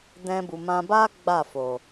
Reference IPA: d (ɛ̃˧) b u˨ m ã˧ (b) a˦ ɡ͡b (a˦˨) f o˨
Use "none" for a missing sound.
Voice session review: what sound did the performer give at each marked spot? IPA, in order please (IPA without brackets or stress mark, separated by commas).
ɛ̃˧, b, a˦˨